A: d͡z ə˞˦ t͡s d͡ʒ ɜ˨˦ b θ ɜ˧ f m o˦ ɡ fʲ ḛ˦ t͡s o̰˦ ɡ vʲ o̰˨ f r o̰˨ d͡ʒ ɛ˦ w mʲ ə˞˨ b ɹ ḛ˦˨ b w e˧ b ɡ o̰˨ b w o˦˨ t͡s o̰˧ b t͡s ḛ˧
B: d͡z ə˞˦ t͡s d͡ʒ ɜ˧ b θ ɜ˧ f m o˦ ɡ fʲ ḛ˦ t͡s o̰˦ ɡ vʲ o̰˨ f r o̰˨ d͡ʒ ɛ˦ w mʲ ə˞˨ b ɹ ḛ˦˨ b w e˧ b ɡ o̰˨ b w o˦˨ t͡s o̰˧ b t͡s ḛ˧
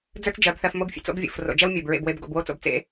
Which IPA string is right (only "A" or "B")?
A